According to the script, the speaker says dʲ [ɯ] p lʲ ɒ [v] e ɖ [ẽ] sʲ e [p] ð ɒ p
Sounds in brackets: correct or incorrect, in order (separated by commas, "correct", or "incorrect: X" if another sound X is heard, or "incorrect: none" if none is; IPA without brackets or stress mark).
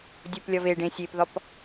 incorrect: u, correct, correct, correct